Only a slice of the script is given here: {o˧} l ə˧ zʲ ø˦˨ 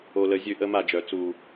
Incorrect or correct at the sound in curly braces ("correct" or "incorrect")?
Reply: correct